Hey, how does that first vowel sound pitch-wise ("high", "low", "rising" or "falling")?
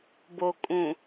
low